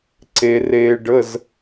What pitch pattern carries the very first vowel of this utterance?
low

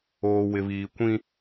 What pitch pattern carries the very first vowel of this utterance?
low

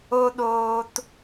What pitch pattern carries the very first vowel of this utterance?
high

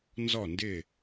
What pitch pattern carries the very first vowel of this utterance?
falling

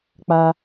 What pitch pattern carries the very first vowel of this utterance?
high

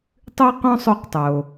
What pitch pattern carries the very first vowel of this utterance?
high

